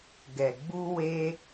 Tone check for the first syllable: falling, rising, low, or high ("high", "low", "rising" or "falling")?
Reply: low